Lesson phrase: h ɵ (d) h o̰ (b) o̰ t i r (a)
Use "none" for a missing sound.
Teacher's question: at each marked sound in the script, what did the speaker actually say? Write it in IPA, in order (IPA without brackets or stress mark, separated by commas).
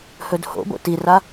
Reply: d, b, a